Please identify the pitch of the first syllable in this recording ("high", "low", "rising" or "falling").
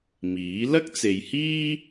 rising